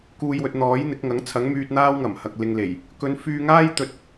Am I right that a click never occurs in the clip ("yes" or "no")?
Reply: yes